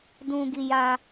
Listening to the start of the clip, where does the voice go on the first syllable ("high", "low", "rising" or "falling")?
high